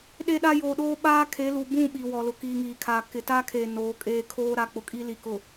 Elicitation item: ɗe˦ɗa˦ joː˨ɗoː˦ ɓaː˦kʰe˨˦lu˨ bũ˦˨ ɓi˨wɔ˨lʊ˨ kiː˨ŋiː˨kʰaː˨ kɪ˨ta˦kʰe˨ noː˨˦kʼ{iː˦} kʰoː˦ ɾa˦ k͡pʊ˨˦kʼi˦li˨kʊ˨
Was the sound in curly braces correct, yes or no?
no